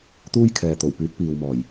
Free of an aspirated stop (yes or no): no